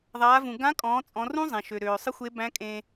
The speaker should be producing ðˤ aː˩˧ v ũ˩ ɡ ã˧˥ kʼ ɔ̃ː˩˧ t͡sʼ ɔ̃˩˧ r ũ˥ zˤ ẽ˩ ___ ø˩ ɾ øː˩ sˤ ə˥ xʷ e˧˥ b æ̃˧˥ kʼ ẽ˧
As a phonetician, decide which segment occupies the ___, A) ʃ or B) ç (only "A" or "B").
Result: A